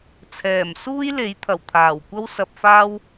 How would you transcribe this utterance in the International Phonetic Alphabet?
t͡sʰ ɛː˨˩ m s uː˥ j l e˨˥ j t̪ʰ ɐ˨˩ w t̪ʰ aː˨˩ w kʷ ɐ˥ w s ɐ˧ p̚ f aː˥ w

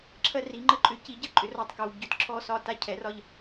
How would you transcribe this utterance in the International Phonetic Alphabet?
ǁʰ ɜ˦ r i˨˥ ŋ͡ǃ ə˦ ǃʼ ʏ˨˥ c i˨˥ ɟ ə˨˥ ǃʼ ʏ˨˥ r ɔ˦˨ tˤ k ɤ˩˧˩ w ɟ ʏ˦˨ t ǁʰ ɔ˦˨ s ɒ˦˨ t a˦˨ cʰ ɛ˨˥ r ɒ˦˨ ʎ

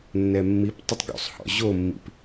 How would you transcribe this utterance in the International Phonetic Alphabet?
nː ɛ mː i p tˤ ɘ tˤ ɡ ṵ sˤ h ɔ̰ ʑ o mː ḭ p

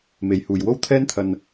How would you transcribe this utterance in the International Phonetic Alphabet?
m e˨ j h uː˨ j w o˥ w t̪ʰ ɛː˥ n t̪ʰ ɐ˧ n

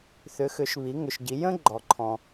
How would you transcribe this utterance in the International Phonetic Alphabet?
θ ʏ˩˧ x ʏ˩˧ ʃ β i˩˧ ŋ ʏ˩ ʃ ɟ i˩˧ j ə̃˥ ɡ͡ǃ ɔ˩ ǃʰ ɔ̃˩

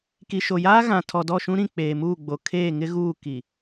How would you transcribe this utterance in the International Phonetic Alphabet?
k i˨ ʃ o˨ j aː˦ ɣ ã˨ tʰ ɔ˨ d ɔ˦˨ ʃ ũ˦ ɾ ĩ˦˨ k͡p eː˨ m uː˦˨ ɡ͡b o˨ kʰ eː˦˨ ŋ ɪ˦ ɣ uː˦˨ k i˨

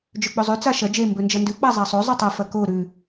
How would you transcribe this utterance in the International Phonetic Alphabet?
d͡ʒ ɵ k͡p ɵ zˤ ʉ t͡s a ʃ ɐ d͡ʒ e m b ɵ n d͡ʒ ɐ n d ʉ k͡p a zˤ a sˤ o zˤ ʉ tˤ ɐ f ɐ k o ɾ ʉ

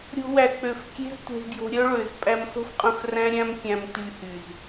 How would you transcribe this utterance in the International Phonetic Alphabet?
ɾʲ o̤˧ w æ˨ k͡p ø˨ f kʲ e̤˦ z tʷ e̤˧ z ɡ j o̤˧ ɾʲ œ˦ ɭ ø˨ z pʼ æ˧ m s o̤˦ f qʼ œ̃˧ f r æ̃˦ ɾʲ æ̃˦ m kʲ æ̃˧ m t y˧ h y˨ z

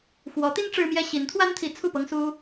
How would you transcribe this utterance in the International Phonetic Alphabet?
x w ɔ˧˥ t̪ i˥ n ʈ͡ʂ ɻ̩˥ m j ɛ˥ ɕ i˧˥ n t̪ʰ w a˥ n t̪ʰ i˧˥ t͡sʰ u˥˩ p ɤ˥ ŋ s u˥

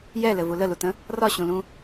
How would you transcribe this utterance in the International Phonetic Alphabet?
j ɛ l ɘ v u l ə l u t ə̃ | r ɒ ɕ ũ l ũ

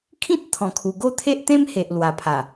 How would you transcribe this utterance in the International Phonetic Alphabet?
kʰ ĩ˦ t̚ t̪ʰ ɔ̃˨˩ kʰ u˨˩ ɡ o˥˧ t̪ʰ e˦ ʔ t̪ ẽ˦ m h e˨ ʔ l w a˨˩ pʰ a˨˩

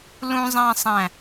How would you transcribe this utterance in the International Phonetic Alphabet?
l ũ zˤ æ̃ sˤ æ̃

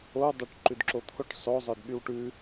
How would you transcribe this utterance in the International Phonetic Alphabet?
o w dˤ o ʈ ǃ ʉ d ǁ o t̪ʰ o ʈ sˤ o zˤ œ d ɓ y w ʈ ʉ

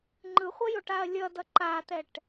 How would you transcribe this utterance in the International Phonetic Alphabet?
ŋ͡ǃ ɯ χʷ ʌ j o ʈ a ɐ̯ lʲ ʌ d ʌ ǃ a t̪ ɛ ʈ

